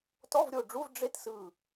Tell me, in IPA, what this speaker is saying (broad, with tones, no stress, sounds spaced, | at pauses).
t ɔ˧˥˧ v ɾʲ o˦˨ ɖ͡ʐ u˧˥˧ v ɖ͡ʐ e˥ t s ɯ˦˨